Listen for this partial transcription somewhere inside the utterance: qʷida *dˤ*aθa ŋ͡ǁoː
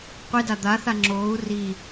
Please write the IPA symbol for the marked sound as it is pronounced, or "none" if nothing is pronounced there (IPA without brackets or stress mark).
d̪